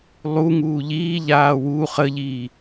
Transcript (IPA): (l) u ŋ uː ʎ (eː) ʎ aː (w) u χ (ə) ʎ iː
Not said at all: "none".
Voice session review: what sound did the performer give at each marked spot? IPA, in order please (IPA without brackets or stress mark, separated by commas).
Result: lˠ, iː, w, ə